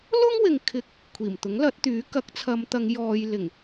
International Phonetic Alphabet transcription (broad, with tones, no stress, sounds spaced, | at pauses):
l ʊ˥ ŋ w ɪ˨ ŋ kʰ ɪ˧ k̚ | kʷʰ iː˨˩ m t̪ ʊ˨˥ ŋ l ɐ˨˥ t̚ t̪ yː˨˥ k ɐ˨˥ k̚ t͡sʰ ɐ˨˧ m t̪ ɐ˨˧ ŋ j ɔː˧ j l ɪ˨˩ ŋ